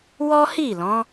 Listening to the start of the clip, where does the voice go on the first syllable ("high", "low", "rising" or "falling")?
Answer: high